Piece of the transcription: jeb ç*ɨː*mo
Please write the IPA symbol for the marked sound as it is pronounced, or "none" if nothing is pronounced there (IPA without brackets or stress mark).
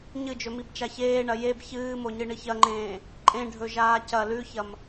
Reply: ɨː